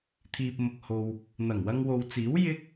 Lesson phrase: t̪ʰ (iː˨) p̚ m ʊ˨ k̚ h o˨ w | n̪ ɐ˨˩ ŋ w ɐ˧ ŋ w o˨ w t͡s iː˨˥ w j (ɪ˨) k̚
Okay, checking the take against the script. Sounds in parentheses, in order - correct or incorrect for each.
correct, incorrect: ɪ˥

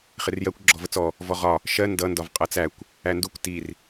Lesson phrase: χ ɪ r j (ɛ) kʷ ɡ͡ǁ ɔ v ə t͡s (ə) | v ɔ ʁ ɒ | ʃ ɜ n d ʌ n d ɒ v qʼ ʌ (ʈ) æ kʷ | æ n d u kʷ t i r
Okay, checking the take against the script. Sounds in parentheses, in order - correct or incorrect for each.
incorrect: ɜ, incorrect: ɔ, incorrect: t͡s

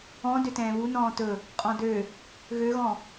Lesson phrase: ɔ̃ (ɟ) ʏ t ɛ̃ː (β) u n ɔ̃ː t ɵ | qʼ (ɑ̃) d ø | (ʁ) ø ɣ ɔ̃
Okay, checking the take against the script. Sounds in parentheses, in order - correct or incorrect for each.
incorrect: d, correct, incorrect: ɔ̃, incorrect: ɣ

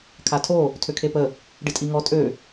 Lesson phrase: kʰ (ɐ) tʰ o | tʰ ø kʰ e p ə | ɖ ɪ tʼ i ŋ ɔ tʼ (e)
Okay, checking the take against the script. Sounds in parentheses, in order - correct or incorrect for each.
incorrect: a, incorrect: ø

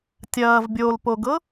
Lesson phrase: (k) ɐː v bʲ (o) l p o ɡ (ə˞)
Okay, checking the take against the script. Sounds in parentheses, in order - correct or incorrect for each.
incorrect: tʲ, correct, incorrect: ɤ

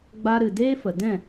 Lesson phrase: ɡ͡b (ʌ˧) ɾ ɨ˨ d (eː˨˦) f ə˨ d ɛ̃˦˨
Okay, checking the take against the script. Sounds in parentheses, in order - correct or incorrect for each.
incorrect: a˧, incorrect: eː˦

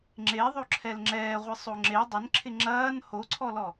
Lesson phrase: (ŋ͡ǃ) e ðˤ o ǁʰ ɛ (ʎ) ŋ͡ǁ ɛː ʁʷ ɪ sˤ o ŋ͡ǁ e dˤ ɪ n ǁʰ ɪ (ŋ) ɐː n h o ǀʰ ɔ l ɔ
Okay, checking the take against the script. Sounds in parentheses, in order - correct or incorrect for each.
incorrect: ŋ͡ǁ, incorrect: l, incorrect: ŋ͡ǁ

